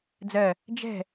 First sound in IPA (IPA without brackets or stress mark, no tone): d͡z